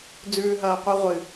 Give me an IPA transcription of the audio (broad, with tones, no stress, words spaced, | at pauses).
d͡zʉː˦ɦɐː˦qʷɨ˦ ʁʷɨ˨